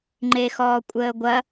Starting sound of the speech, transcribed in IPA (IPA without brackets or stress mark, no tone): ŋ͡ǃ